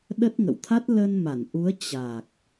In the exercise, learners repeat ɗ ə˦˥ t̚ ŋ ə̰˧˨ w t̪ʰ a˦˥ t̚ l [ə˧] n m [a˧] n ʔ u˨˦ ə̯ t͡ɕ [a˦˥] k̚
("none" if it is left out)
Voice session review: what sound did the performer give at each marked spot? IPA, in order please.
ə˧, a˧˩, a˨˩

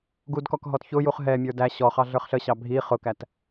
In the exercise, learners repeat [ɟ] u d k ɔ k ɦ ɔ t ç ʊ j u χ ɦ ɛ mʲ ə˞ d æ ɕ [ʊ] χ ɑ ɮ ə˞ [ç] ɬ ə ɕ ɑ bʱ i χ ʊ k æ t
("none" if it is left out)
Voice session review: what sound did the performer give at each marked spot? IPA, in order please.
ɡ, ɔ, χ

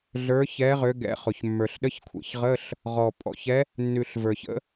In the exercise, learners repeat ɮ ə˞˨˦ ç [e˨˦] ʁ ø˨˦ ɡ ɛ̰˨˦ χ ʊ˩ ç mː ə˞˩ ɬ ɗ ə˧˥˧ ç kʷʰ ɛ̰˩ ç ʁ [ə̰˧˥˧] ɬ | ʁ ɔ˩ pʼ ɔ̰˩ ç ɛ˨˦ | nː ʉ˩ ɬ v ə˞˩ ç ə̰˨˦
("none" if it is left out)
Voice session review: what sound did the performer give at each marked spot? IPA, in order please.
ɛ˨˦, ə˧˥˧

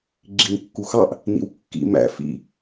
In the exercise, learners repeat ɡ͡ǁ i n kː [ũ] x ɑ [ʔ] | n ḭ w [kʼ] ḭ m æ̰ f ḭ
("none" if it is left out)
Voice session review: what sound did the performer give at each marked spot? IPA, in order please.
u, ʔ, kː

